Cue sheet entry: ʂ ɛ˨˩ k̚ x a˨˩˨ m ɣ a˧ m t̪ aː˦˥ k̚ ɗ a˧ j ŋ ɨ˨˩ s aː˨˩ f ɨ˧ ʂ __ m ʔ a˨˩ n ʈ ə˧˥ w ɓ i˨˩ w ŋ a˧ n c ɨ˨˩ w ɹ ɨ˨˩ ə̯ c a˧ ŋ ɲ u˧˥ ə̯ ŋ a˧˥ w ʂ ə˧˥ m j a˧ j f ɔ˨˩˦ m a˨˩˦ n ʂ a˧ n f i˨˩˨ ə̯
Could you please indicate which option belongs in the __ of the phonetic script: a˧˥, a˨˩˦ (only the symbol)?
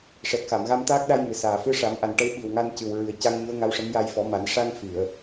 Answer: a˨˩˦